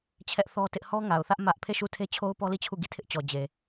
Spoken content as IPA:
t͡ɕʰ ɛ˦ ʔ θ ɔ˦ t ɪ˦ ʔ h ɔ˦ ŋ a˨ ʊ̯ θ ä˦ ʔ m ä˦ ʔ pʰ e˦˨ ʃ u˦˨ tʰ e˦ t͡ɕʰ o˦ ʊ̯ p ɔ˦ l i˦˨ t͡ɕʰ u˦˨ ɡ i˦˨ tʰ ɪ˦ ʔ t͡ɕ ɔ˨ d͡ʑ e˨

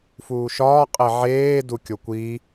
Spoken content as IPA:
f uː ʃ ɒː qʼ e ʕ eː d u kʲ o kʷ i

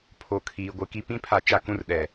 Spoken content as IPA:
pʰ o˨ kʰ iː˨ ɡʷ ɪ˦ k i˦ p ĩ˦ pʰ a˨˦ t͡ʃ a˨ k ũ˦˨ r ɗ ɛ˨

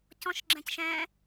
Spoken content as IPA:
c ɔ̃ ʃ ɡ͡ǁ ɛ̃ c ʃ ɛ̃

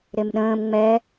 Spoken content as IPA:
ɾ e m ɗ ə̃ː m ŋ͡m ɛ

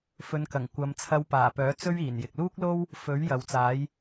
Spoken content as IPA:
f ɵ˨˧ n k ɐ˨˩ ŋ kʷ ɐ˨˧ m t͡sʰ ɐ˧ w p aː˨˩ p œː˨˥ t͡s ɵ˥ ɥ iː˨˩ n j ɪ˨ k̚ l uː˥ k̚ l o˥ w | f ɵ˨˥ ɥ j ɐ˨ w t͡s aː˨˥ j

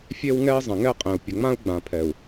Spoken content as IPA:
fʲ e˦ w ŋ ɛ˦ i̯ zˤ ə̃˨ ŋ ɛ˦ qʼ ẽ˨ u̯ pʲ ə˨ ŋ͡m ã˦ u̯ ɡ͡b ã˨ pʰ ɛ˨ u̯

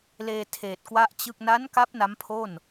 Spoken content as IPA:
l eː˧ tʰ eː˨˩ t̚ k w a˥˩ ʔ t͡ɕ ɯ˥˩ k̚ n a˦˥ n k a˦˥ p̚ n a˦˥ m pʰ o˥˩ n

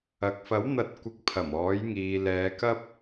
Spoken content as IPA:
ɐ˨ k̚ f ɐ˨˥ w n̪ ɐ˨˥ t̚ kʷ ɪ˨˥ k̚ pʰ ɐ˨˩ m ɔː˨˥ j ŋ iː˧ l ɛː˨˧ k ɐ˥ p̚

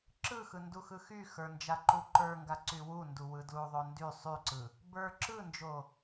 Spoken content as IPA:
ǁ ɯ x ɯ n d u x ɯ x y x ə˞ n d͡ʒ a ǃ u ǃ ə˞ ŋ ɡ a ǀ y w u n d u w ɯ d l u ðˤ o n d y sˤ y ǀ ɯ | b ə˞ ǁ ɯ n d͡ʒ o

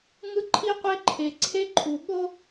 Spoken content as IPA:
ŋ ɯ˦ ǃʰ i˦ qʷ e˦ ǃʰ e˨ ǀʰ e˦ ǃʰ u˨ ɓ o˦

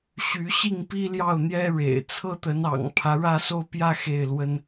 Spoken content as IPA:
ɕ y˧˥ ɕ i˥˩ ŋ p i˥ l j ɑ˥˩ ʊ̯ n̪ j ɛ˥ ɻ ḛ˨˩ ɪ̯ t͡sʰ ɤ˥ t̪ ə˧˥ n ɑ̰˨˩ ŋ pʰ ä˧˥ ɻ ä˥˧ s o˥˧ ʊ̯ p j ä˥˧ x e˥˩ ɪ̯ l w ə˥ n

